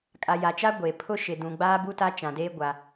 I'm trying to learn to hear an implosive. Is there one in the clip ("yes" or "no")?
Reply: no